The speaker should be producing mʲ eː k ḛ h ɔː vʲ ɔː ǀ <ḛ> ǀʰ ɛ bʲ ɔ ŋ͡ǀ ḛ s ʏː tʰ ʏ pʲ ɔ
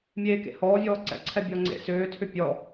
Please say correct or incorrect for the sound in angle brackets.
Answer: incorrect